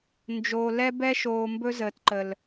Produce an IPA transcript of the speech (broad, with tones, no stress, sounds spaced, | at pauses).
n d͡ʒ oː˨ l ɛ˦ b ɛ˦ ʃ oː˨ m b ɵ˦ z əː˨ t ǃ ə˨ l